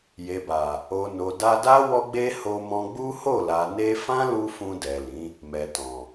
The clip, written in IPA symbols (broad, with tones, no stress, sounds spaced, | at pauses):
j e˨ b a˨ | o˨ n o˨ d a˧ d a˦ w ɔ˦ ɡ͡b e˦ h o˧ m ɔ̃˧ ɡ͡b u˦ h o˦˨ l a˨ n e˧ f ã˦ l u˧ f ũ˧ d ɛ˨ l ĩ˨˦ | m ɛ˨ t ɔ̃˨